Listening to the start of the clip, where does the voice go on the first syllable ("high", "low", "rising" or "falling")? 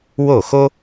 falling